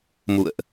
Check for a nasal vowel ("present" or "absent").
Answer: absent